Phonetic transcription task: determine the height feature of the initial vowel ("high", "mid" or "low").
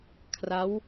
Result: low